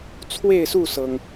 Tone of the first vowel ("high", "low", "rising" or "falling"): falling